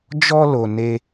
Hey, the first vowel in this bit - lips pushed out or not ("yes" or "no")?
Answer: yes